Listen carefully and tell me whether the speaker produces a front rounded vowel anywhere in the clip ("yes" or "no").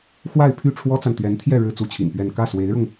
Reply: yes